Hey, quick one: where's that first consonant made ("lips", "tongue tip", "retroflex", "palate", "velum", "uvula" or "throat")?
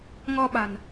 velum